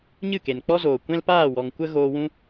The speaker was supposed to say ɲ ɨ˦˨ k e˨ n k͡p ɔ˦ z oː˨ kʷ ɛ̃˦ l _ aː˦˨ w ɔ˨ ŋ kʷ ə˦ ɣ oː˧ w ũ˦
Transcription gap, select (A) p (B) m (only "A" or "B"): A